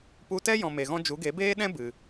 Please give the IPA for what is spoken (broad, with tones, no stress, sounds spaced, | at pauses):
p u˧ t ɛ˦ j ɔ̃˨ m e˨ ɣ ɔ̃˦ d͡ʒ u˨˦ ɡ e˨˦ b eː˦ ɗ ɛ̃˦ b ɨ˨